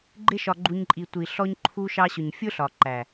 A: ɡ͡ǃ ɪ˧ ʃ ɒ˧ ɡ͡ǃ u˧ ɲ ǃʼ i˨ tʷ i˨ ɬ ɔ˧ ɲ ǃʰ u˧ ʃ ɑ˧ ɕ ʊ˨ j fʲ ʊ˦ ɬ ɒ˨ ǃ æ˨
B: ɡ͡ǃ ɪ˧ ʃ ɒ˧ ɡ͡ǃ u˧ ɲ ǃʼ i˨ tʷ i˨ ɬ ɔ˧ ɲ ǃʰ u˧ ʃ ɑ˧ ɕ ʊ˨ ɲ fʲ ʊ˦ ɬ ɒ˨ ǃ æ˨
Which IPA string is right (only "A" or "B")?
B